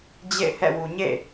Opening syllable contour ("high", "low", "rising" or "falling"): falling